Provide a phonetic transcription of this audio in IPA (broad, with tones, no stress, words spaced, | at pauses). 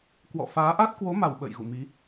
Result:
kwɔ̰˧˨faː˨˦ ʔa˦˥t̚kwo˨˦ma˧˩w ɓə̰ː˧˨jɣṵ˧˨mi˨˦